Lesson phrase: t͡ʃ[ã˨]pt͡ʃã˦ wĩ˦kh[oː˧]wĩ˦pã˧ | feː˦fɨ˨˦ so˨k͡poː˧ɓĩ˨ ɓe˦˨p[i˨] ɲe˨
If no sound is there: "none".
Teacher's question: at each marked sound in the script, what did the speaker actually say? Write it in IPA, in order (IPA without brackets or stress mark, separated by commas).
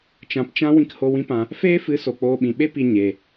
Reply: ã˨, o˧, i˨